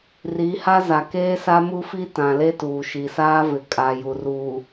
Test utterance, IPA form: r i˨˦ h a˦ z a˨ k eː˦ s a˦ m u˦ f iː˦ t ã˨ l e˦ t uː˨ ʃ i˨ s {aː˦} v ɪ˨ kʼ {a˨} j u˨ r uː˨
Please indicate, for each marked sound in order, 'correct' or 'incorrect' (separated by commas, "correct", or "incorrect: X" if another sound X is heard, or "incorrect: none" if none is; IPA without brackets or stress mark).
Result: correct, correct